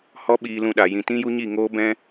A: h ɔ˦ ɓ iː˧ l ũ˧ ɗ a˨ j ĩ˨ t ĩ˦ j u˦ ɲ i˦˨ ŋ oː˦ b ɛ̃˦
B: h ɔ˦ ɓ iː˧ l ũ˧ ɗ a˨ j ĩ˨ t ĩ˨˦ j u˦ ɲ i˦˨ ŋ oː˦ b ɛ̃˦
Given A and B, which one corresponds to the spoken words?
A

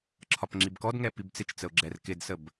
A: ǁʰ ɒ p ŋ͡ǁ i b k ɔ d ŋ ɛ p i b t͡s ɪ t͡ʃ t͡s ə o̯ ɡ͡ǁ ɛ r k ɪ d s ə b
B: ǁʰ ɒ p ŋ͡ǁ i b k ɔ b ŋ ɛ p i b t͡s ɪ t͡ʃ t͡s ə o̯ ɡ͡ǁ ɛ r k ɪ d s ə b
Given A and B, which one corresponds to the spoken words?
A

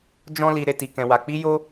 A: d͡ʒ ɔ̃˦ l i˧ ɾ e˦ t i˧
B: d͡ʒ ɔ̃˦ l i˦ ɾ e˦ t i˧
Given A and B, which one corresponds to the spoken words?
A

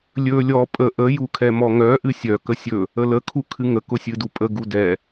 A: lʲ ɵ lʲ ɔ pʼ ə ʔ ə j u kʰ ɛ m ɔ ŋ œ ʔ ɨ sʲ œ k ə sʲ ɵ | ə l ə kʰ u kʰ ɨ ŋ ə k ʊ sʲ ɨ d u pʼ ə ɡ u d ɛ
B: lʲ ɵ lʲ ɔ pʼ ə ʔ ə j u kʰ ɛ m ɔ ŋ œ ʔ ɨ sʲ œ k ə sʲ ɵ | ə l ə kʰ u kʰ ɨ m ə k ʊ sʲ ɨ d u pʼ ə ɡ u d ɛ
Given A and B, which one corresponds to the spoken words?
A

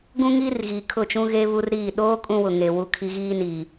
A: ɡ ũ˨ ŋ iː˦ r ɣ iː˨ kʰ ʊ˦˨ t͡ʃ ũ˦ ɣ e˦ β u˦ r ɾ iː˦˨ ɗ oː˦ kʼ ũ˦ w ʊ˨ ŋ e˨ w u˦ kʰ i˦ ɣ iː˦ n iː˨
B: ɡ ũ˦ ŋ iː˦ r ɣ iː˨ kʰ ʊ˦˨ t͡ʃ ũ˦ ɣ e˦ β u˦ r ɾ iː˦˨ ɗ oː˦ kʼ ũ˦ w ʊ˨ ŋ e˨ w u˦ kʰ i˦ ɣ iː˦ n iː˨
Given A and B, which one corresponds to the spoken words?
B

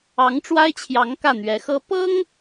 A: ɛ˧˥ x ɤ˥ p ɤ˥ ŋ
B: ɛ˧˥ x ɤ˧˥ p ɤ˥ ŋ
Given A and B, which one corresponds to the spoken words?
A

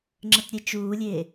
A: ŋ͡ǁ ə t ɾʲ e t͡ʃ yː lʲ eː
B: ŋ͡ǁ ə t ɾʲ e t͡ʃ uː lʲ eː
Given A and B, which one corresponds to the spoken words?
B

